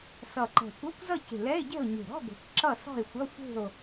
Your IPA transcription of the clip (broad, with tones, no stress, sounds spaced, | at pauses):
s ʌ˨˩ ǃ ɛ̤˨˩ kʷ ʌ˧˥˧ kʷ z ʌ˥˨ c e̤˨˩ l ɛ˧˥˧ e̯ ɟ ɛ̤˥˨ o̯ ɲ e̤˨˩ ɾ ɔ̤˧˥˧ ɡʷ ɛ̤˨˩ kʷ ǁ ʌ˥˨ s ɔ̤˥˨ e̯ xʷ ʌ˧˥˧ xʷ e̤˥˨ o̯